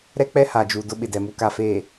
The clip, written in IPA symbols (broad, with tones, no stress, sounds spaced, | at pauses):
ɾ ɛ˦ k͡p ɛ˦ h a˨ d͡ʒ u˨ d ʊ˦ ɓ ɪ˨ d ɛ˨ m u˨ k a˨ f eː˨